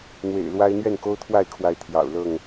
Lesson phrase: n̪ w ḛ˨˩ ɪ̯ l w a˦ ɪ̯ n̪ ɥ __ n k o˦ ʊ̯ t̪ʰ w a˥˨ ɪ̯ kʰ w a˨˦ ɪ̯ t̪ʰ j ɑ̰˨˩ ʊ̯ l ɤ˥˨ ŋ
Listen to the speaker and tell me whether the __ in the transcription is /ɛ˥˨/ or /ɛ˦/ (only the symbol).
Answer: ɛ˥˨